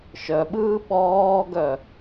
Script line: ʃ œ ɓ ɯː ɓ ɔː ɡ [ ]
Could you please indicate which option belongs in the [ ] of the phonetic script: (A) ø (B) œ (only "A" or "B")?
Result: B